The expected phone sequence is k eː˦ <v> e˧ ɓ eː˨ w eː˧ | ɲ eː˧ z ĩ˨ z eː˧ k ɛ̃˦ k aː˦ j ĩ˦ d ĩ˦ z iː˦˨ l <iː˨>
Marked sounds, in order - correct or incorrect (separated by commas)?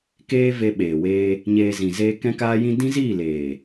correct, incorrect